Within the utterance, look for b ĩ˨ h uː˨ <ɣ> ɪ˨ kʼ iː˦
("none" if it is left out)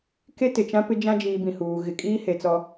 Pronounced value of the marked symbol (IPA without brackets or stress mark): ɣ